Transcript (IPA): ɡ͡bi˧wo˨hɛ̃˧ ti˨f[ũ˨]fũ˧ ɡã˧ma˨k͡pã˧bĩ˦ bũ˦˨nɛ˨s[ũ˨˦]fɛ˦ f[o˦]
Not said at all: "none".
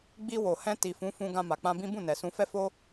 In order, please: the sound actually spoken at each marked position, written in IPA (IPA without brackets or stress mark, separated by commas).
ũ˨˦, ũ˧, o˦